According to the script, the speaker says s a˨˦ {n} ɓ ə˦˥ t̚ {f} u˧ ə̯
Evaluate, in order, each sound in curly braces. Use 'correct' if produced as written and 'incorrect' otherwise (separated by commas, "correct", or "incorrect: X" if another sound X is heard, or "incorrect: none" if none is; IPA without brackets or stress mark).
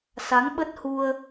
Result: incorrect: ŋ, incorrect: h